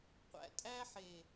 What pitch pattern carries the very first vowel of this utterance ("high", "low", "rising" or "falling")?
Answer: low